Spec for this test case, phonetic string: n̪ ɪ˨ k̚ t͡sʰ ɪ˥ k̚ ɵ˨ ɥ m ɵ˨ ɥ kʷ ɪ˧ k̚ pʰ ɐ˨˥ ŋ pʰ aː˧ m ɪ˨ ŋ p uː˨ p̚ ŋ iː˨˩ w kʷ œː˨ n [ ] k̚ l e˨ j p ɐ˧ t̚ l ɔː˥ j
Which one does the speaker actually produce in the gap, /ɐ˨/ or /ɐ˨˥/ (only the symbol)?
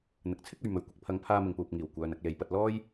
ɐ˨